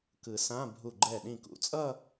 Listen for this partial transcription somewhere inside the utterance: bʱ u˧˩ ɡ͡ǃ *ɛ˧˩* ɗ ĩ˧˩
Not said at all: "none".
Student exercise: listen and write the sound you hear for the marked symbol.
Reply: ɛ˧˩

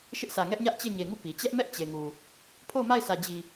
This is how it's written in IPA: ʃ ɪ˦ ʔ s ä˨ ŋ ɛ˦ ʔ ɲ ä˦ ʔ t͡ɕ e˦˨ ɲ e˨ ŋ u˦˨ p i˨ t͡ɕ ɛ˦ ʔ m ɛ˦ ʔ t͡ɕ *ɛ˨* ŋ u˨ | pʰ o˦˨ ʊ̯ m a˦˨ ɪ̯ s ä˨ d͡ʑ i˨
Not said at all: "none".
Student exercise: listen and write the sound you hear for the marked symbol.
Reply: e˨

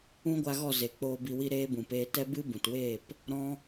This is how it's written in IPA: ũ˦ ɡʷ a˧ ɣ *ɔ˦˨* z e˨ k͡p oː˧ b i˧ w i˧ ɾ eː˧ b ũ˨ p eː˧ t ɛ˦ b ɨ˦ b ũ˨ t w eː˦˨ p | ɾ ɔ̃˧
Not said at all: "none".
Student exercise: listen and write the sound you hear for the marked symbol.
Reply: ɔ˦˨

